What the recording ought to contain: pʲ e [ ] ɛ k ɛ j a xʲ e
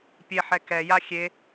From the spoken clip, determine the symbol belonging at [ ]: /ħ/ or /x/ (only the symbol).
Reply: ħ